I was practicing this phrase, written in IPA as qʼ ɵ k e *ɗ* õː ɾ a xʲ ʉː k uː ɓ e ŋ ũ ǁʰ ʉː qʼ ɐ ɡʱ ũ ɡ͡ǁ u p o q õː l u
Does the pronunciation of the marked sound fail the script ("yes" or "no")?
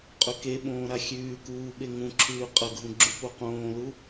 yes